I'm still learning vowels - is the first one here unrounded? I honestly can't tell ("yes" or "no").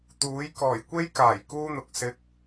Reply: no